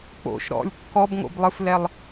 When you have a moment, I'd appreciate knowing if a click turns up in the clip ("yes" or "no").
no